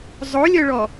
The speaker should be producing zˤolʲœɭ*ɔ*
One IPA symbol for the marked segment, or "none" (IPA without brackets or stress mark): ɔ